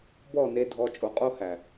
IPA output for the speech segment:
bɔ˦˨ne˧dʱɔ˧ t͡ʃʼo˨qʼo˧hæ˨

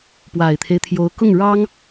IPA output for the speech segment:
pwa˨˩ɪ̯t̪ʰe˦ɪ̯t̪ʰjo˧˥ʊ̯ kʊ˥˩ŋɻɑ˥ŋ

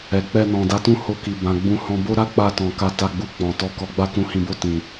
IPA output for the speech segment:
ɛ˨ k͡pɛ˧nɔ̃˨ da˨˦tũ˦˨ ho˧ki˨ bã˨ɡ͡bũ˧hɔ̃˧ bo˦ɾa˦k͡pa˧tɔ̃˨ ka˧ta˧ɡ͡bu˧ k͡pɔ̃˨tɔ˧ kɔ˨ɡ͡ba˧ kũ˨hĩ˨bo˧ tĩ˨

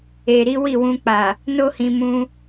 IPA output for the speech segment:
e˨ɾi˨˦ wi˦˨wũ˧k͡pa˨ | no˦hĩ˧ mũ˧

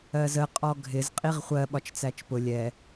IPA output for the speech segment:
ɜzə qʼɔɡʱɪz qʼiʁχʷɜ ɓɒt͡ʃt͡sæt͡ʃpʊ lʲɛ

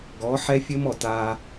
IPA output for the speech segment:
ɡɔ˨˦ħɛ˦fʲɘ˦mɔ˨ ta˦

